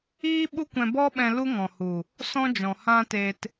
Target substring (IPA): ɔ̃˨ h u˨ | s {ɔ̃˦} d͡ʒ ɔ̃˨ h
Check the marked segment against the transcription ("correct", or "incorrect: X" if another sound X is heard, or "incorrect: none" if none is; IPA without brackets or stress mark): correct